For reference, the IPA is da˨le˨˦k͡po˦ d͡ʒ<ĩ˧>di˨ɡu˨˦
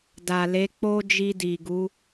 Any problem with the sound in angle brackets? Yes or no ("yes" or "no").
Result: yes